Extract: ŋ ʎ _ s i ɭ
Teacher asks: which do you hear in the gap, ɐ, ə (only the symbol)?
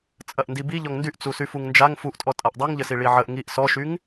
ə